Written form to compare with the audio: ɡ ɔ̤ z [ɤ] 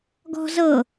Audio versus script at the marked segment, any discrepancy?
no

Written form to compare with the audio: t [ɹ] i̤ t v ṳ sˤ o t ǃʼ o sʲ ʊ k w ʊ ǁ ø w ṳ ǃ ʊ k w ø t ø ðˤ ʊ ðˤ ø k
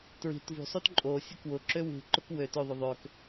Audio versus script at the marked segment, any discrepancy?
no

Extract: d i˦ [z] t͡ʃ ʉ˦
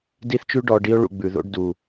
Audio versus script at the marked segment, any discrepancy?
yes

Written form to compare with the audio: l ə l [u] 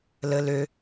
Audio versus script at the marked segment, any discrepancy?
yes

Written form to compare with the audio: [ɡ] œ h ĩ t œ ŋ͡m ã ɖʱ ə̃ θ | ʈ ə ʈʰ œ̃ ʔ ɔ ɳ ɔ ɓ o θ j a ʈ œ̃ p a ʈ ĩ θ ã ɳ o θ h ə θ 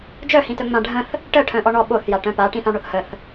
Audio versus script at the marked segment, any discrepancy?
yes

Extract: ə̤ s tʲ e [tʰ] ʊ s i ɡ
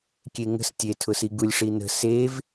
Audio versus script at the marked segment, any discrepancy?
no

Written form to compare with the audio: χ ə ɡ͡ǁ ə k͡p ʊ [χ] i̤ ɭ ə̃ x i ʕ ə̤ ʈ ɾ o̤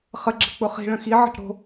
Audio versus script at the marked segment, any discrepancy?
no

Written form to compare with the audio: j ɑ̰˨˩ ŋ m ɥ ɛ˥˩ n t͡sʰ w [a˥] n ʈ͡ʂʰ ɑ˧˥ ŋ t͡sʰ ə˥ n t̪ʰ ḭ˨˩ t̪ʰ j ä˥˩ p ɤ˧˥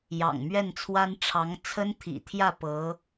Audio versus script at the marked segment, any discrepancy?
no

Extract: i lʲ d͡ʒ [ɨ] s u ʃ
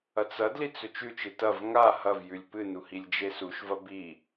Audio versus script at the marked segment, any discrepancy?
yes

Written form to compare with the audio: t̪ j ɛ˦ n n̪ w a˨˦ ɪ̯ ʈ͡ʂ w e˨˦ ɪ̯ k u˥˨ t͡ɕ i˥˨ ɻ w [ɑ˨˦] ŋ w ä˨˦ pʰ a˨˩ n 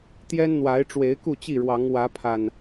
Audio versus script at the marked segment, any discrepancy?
no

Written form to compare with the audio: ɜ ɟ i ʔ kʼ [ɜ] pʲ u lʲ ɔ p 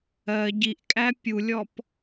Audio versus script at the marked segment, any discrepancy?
yes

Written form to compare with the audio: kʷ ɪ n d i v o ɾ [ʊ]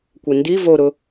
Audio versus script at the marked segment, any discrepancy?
no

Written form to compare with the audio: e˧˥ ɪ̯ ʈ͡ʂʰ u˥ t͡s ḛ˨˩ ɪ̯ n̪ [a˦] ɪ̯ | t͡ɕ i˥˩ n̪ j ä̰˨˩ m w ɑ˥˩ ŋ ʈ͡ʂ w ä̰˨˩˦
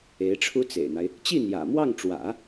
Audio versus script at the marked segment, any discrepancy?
no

